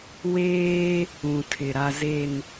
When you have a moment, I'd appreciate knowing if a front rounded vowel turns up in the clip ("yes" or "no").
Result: no